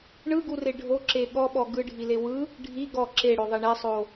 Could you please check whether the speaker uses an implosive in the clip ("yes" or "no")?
yes